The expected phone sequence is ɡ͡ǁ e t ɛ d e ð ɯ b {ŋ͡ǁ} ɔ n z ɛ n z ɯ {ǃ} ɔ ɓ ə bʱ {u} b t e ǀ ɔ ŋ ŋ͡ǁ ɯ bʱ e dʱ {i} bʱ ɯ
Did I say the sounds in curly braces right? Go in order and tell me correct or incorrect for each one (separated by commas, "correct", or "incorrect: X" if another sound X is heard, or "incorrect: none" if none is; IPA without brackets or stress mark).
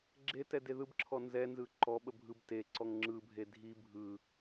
incorrect: ǁʰ, correct, incorrect: ɯ, correct